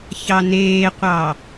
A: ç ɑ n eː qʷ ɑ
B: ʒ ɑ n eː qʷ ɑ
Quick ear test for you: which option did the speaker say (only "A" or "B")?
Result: A